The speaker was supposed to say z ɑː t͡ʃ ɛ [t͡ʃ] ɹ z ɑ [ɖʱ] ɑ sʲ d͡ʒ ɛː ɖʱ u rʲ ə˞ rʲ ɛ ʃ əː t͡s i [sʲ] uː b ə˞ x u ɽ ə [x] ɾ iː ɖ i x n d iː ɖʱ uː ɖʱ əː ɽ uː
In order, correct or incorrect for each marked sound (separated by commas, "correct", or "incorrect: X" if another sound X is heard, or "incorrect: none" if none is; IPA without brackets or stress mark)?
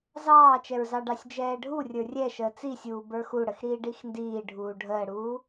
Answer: incorrect: none, incorrect: ɖ, correct, correct